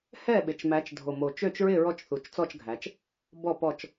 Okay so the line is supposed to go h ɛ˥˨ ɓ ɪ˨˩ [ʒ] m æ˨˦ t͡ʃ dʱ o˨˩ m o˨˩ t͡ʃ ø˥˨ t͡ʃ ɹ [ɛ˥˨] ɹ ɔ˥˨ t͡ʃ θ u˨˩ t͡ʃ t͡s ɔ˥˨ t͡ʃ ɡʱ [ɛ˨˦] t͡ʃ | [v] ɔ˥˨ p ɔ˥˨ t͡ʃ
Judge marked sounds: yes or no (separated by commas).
no, no, no, no